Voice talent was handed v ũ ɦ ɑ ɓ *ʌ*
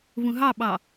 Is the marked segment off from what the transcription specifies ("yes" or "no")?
yes